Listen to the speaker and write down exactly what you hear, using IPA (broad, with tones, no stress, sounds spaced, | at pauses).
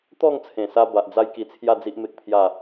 t̪ ɔ˥˧ ŋ t͡sʰ ẽ˨˩ s a˧ b a˨ ʔ d͡z a˦ j k i˧ t͡sʰ j a˥˧ d͡z i˦ ʔ m e˦ k̚ pʰ j a˥˧